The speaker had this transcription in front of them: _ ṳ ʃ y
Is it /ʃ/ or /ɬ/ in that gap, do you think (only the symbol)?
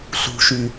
ɬ